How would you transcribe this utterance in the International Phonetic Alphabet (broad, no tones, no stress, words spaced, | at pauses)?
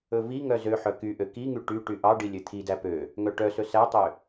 ɵviŋœ zøħœ kyʔø kiŋy ʈy ʈyʔɑɖi lʲøt̪ʰidæ pø | ŋœʈœsɵ sætˤø